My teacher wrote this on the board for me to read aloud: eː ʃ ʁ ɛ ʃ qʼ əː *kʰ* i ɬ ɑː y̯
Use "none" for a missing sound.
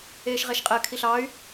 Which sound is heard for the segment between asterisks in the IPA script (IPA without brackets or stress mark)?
kʰ